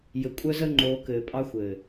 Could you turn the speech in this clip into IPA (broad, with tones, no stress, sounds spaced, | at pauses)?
j ɘ˨ kʷʼ œ˦ z ə˦ ŋ͡ǃ oː˨˦ k ɘː˨ pʼ ɑ˦ xʷ ɘː˨